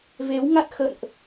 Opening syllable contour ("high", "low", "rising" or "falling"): rising